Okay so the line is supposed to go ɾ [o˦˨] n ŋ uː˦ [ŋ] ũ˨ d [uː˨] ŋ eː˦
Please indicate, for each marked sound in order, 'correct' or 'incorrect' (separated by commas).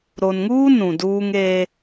incorrect, incorrect, incorrect